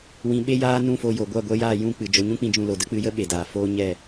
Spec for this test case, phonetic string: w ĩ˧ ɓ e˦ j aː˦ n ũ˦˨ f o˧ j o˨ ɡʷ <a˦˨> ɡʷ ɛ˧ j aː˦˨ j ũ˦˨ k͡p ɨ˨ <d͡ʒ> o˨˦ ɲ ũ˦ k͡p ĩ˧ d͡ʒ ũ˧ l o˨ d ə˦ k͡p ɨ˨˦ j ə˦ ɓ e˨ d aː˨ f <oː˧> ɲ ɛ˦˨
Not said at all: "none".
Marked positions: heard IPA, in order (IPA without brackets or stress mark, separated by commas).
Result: a˦˨, d͡ʒ, oː˧